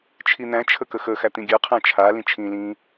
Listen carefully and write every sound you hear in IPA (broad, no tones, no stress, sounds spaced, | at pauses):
t͡ʃʰ i n̪ æ̃ t͡ʃʰ ə k ə x ə x æ t̪ ĩ ɡʲ ɜ qʰ æ̃ t͡ʃʰ a l ĩ t͡ʃʰ ĩ l ĩ